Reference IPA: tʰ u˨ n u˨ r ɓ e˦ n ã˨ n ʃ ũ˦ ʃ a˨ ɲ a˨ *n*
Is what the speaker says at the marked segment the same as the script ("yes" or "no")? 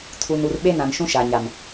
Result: no